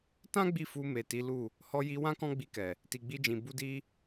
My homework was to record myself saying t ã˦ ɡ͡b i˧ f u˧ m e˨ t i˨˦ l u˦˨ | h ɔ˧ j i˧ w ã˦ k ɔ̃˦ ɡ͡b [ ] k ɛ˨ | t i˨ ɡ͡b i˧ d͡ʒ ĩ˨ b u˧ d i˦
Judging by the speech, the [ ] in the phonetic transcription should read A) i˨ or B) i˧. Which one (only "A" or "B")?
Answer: B